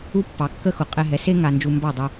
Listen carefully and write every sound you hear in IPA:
u˥ pː ɑ˩˥ kː ə˥ x ʊ˩˥ qʼ ɛ˧ ɦ ɛ˩˥ s e˥ ŋ a˧ n d͡ʒ u˧ m b ɑ˥˩ dˤ ɪ˧

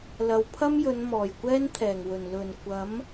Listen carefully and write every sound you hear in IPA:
l ɐ˨˧ w pʰ ɐ˥ m j ɵ˨˧ n m ɔː˨˩ j kʷ ɛː˥ n t̪ʰ ɛː˨˩ ŋ w ɵ˨˩ n l ɵ˨˩ n kʷ ɐ˨˥ m

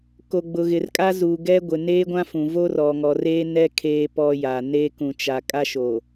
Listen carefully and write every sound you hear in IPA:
k o˨ ɡ͡b ʊ˨ ɣ ɪ˨ r kʼ a˦ z uː˨ ɡ ɛ˦ ɡʷ ɪ˨ n eː˦ ɡʷ ã˦ f ũ˨ v o˦ r ɔ˨ ŋ ɔ˨ r eː˦ n ɛ˦ kʰ eː˦ p ɔ˦ j a˨ n eː˦ k ũ˨ t͡ʃ a˨ kʼ a˦ ʃ o˨

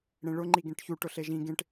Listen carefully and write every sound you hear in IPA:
ɽ ẽ ɭ ʊ ŋ͡ǃ i ɡ ẽ ʈ ç u ʈ ʊ ɬ e ʒ ĩ ɡ ẽ ʈ

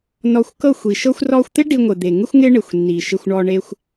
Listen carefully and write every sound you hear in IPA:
n ɔ˧ xʷ k ɤ˦˨ xʷ i˨ ʃ ɤ˧ xʷ r ɔ˧ xʷ t̪ ɪ˦ ɖ i˧ ŋʷ ɪ˨ d̪ e˨ ŋ ɪ˦ xʷ ŋ ɪ˦ ɳ ɪ˨ xʷ nː i˨ ʃ ɪ˧ xʷ ɳ ɔ˧ ɳ e˧ xʷ

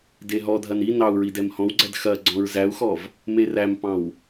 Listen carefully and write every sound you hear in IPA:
d e ɦ ɔ dʱ ɐ n i n ɑ u̯ ɹ i d ɛ m h ɔ̃ w ɡ͡ǀ æ d x ɐ ɡ͡ǀ ɔ̃ ɹ z æ u̯ x ɔ v | m e r æ m p ɑ̃ w

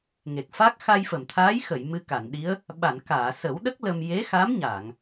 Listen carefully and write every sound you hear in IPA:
ŋ e˨˩ k̚ f a˦˥ k̚ x a˧ j f ə˨˩˨ m t̪ʰ aː˧˥ j x ə˨˩˨ j m ɨ˧ k a˨˩˨ n ɗ i˧˥ ə̯ | ɓ a˨˩˨ n k aː˨˩˨ s ə˨˩˦ w ɗ ə˦˥ k̚ l ə˧ m j e˧˥ x a˧˥ m ɲ a˨˩˨ ŋ

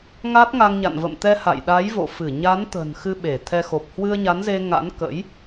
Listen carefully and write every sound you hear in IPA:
ŋ a˦˥ t̚ ŋ a˧ ŋ ɲ a̰˧˨ n v ə̰˧˨ m t̪ ɛ˧ h a̰˧˨ j ɗ a˨˦ j v o̰˧˨ f ɨ˧˩ ɲ a˨˦ n t̪ ə̤˨˩ n x ɨ˧ ɓ e˧˩ t̪ʰ ɛ˧ x o˨˩ p̚ h w ɨ˧ ə̯ ɲ a˨˦ n z e˧ ŋ a̰˧˥ n k ə̰˧˥ j

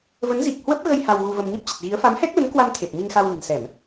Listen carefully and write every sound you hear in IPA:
v ə˨˦ n z i˨˩ k̚ h w ə˦˥ p̚ ɣ ə˧ j h a˧ w ɣ u˧ v ə˧ m ɲ ə˦˥ p̚ t͡ɕ ə˨˩ t̚ ɣ i˨˦ ə̯ f a˨˦ m h ɛ˦˥ k̚ l ə˨˦ n k w a˧ m t̪ʰ e˨˩ p̚ m i˧ ŋ x a˧ w l ə̤˨˩ n s ɛ˧˩˨ m

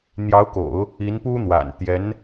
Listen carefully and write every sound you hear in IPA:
n̪ j ɑ˧˥ ʊ̯ k o̰˨˩˦ ʊ̯ | i˧˥ n p u˥ n̪ w a̰˨˩ n t̪ j ɛ˧˥ n

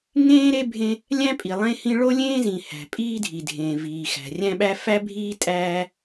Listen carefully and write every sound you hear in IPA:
ŋ ẽː˥ ɾ e˥ bʱ ẽ˥ | lʲ æ̃˥ pʼ i˩ lˠ ẽ˥ h ĩ˥ ɭ o˥ lʲ ẽː˥ z ĩ˩ h æ̤˩ pʼ iː˥ dʱ i˩ dʱ ẽː˩ v iː˩ x æ̤˩ rʲ æ̃˥ ɓ æ˥ f æ˥ bʱ iː˥ tʼ æː˥

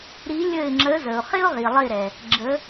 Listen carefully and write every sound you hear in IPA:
ɾ i˨˦ lʲ ə˧˩ ɪ̯ ŋ͡ǁ ə˨˦ z ə˩ ʊ̯ χ ɪ˦ ʊ̯ ʁ i˩ lˠ ɪ˧˩ ɾ ɛ˩ | ɡ͡ǁ ə˨˦

